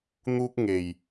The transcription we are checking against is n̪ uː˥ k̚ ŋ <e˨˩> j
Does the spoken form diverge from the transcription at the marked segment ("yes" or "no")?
no